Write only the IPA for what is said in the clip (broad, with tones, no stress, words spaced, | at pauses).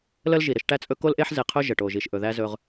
lə˦lʒi˨ ɾə˦ʃ ʈæ˦t͡sʼɵ˦ ko˦lʔe˦ħze˨qʰɵ˦ ʒə˨ʈo˨ʒi˨ʃʔɵ˨ ðæ˦zɵ˦ʁ